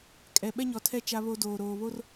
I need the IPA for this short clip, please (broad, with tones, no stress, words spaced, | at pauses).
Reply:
kʼɛ˨ ɓɛ˦ɲɔ˨tʰɛ˦˨ t͡ʃa˦βo˦ doː˨ɾoː˨βo˦r